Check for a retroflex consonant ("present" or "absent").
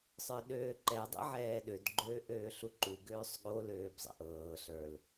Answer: absent